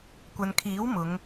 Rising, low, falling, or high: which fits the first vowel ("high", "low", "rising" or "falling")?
low